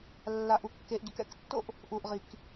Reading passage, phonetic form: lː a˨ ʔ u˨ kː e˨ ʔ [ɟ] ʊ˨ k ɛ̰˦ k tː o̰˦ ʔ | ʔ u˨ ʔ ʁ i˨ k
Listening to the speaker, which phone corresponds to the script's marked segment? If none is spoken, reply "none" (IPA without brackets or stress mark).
ɟ